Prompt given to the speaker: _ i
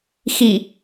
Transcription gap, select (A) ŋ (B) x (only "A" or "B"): B